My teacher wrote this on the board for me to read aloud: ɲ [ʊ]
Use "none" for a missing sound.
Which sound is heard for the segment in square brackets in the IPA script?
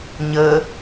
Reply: ə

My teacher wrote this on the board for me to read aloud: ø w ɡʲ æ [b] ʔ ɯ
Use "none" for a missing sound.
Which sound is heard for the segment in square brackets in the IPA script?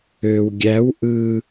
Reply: w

